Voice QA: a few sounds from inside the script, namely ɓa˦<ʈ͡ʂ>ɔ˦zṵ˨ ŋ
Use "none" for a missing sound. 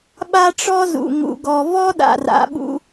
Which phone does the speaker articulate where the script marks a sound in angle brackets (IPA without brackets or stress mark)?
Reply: ʈ͡ʂ